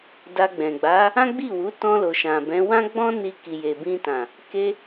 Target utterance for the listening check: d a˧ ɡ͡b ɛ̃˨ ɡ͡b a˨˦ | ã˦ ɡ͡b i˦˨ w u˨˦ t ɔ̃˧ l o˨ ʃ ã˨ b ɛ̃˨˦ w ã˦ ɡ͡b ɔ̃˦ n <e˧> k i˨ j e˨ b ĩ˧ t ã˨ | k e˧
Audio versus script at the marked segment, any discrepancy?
yes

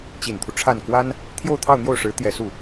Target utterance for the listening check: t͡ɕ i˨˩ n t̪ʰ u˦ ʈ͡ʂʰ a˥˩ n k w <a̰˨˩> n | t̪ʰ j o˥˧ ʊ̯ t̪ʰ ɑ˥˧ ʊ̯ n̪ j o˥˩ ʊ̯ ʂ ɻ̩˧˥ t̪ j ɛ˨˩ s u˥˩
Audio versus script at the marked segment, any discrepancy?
yes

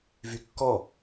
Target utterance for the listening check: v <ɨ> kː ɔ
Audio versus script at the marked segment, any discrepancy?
yes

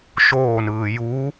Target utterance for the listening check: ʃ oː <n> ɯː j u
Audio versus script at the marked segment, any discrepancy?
no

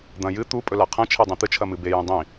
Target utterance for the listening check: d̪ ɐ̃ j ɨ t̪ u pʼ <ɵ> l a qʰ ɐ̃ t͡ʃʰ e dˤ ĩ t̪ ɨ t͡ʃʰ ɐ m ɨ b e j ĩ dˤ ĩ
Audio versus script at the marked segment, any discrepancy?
no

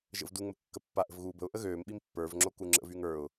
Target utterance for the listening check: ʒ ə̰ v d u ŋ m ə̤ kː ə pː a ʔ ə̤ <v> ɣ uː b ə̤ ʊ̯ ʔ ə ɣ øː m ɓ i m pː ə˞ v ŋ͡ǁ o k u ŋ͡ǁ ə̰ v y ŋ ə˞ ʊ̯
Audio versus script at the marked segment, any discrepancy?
no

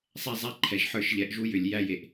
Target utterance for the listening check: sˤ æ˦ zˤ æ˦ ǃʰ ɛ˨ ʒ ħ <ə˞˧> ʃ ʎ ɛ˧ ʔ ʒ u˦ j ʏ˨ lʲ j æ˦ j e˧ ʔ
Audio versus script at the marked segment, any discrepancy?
yes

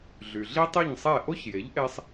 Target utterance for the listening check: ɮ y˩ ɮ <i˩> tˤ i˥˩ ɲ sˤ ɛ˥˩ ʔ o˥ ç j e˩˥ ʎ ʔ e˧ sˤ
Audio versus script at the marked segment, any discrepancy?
yes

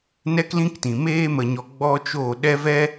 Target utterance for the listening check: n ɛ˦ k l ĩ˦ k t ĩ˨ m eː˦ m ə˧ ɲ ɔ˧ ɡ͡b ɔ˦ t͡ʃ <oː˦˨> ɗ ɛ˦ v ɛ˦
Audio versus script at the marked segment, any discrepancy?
no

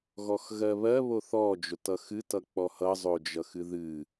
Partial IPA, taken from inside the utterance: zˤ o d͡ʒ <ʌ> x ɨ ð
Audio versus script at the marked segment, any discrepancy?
no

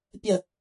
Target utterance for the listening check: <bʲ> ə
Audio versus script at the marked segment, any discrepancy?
yes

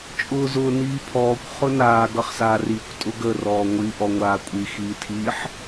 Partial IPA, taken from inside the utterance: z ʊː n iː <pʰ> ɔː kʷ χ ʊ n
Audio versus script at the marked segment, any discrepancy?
no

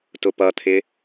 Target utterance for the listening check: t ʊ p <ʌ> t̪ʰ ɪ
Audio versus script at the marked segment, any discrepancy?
no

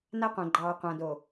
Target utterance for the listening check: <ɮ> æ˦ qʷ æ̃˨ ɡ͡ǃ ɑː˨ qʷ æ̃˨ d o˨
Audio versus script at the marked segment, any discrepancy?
yes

